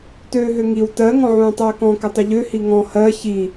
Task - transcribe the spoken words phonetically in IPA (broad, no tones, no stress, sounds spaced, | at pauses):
t øː ɦ ø ŋ i w t ɜ ŋ ɔ̃ ʕ ũː tˤ øː k ɔ̃ k ʏ tˤ ʏ ʎ ø h i ŋ ɔ̃ h ɜ ç i